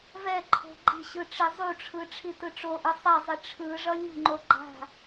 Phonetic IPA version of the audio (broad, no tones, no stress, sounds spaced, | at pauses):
v ɛ ǃʰ o̤ ɡ͡ǃ i̤ ɕ ɯ ʈ͡ʂ i zˤ u ʈ͡ʂʰ ɯ ʈ͡ʂʰ i t ɯ ʈ͡ʂ o ʔ ɯ sˤ ɛ zˤ i ʈ͡ʂʰ ɯ ʐ ʌ lʲ ṳ ŋ͡ǃ o ɡ͡ǃ a̤